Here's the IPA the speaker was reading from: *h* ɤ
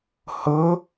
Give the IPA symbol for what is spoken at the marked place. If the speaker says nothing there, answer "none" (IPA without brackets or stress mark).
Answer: h